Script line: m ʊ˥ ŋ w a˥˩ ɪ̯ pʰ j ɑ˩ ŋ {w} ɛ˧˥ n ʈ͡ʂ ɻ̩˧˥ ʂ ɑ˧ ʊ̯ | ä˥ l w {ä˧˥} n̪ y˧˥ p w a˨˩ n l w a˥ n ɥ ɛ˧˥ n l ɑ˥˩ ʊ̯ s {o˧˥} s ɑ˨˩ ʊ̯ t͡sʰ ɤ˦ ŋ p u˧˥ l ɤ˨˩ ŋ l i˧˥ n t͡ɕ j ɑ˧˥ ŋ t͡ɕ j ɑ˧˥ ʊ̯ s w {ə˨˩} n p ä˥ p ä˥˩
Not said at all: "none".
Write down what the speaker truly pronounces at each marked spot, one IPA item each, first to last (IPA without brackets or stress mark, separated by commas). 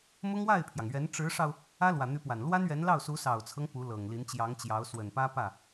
ɥ, ä˨˩, u˧˥, ə˨˩